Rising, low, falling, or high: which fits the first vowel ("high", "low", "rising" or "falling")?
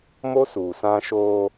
high